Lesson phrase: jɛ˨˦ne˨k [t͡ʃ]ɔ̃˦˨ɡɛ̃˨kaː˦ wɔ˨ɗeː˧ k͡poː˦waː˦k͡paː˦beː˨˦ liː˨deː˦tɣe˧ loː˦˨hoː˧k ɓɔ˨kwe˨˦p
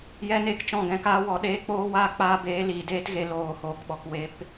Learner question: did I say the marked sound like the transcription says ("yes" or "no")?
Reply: yes